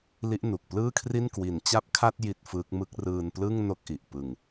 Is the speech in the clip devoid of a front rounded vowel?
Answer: yes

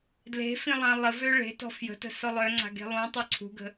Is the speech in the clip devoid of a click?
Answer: no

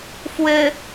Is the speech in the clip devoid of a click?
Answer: yes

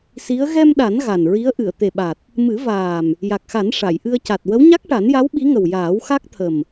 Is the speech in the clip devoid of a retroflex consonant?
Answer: no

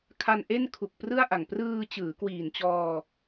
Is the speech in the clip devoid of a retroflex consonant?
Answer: yes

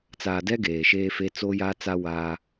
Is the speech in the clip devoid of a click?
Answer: yes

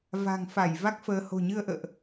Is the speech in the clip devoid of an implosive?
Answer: yes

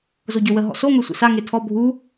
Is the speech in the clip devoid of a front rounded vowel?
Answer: no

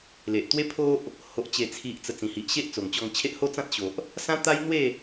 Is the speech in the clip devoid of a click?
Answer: yes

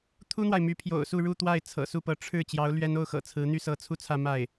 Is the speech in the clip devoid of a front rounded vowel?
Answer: no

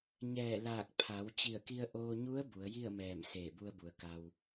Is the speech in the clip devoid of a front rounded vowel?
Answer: yes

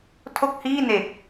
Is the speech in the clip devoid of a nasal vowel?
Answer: yes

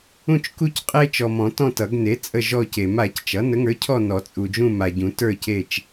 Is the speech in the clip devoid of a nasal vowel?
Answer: no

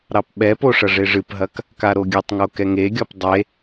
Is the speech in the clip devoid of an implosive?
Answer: no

